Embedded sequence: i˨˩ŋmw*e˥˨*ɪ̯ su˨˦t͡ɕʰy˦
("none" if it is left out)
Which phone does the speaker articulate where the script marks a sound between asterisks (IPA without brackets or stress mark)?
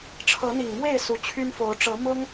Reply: e˥˨